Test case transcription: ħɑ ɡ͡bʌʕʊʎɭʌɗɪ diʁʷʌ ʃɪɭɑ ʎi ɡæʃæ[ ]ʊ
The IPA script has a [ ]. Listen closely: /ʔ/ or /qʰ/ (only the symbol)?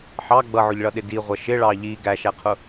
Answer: qʰ